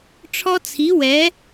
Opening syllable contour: high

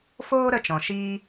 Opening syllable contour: high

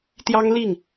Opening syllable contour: high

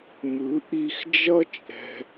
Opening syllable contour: rising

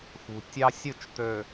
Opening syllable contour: low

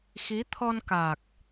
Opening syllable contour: rising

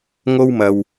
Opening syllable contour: high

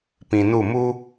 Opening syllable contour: low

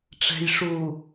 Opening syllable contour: low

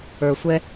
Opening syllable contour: low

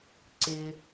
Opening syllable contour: low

